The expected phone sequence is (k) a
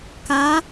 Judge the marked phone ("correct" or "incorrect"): correct